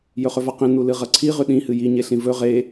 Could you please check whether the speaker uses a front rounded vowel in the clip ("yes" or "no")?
no